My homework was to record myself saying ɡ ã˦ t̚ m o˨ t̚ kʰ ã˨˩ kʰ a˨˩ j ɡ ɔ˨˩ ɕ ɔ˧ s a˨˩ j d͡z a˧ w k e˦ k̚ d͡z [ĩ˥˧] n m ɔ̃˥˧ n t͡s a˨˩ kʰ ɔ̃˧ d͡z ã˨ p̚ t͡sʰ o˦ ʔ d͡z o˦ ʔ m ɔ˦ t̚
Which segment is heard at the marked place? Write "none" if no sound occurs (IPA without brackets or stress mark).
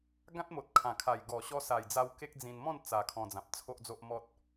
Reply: ĩ˧